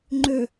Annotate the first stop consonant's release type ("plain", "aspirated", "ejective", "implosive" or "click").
click